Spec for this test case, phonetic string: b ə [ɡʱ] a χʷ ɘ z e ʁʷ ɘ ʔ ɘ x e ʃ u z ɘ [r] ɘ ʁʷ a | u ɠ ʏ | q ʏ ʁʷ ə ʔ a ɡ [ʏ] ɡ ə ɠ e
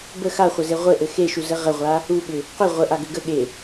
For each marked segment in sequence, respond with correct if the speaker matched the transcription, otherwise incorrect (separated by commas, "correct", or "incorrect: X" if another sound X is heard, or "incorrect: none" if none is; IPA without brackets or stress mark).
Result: incorrect: x, incorrect: ʁ, correct